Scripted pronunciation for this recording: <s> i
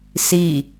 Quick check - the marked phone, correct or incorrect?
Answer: correct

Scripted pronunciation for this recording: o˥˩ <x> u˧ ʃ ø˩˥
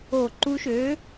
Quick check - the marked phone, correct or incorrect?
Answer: incorrect: ǃ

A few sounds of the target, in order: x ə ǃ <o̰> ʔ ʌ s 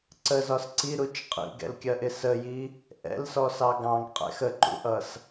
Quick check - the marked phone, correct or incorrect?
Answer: incorrect: ṵ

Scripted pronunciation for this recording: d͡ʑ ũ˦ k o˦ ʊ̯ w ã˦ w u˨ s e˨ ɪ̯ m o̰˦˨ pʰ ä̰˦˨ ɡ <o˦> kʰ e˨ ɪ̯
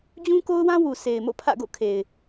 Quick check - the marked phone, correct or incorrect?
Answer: incorrect: o̰˦˨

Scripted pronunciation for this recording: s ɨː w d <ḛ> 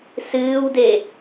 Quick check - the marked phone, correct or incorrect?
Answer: incorrect: e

